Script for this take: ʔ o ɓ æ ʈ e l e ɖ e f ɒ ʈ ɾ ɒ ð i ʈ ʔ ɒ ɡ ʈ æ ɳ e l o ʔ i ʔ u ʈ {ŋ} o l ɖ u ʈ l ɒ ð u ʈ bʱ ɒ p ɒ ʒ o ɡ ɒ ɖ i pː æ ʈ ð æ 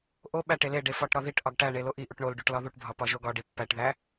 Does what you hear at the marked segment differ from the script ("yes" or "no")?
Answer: yes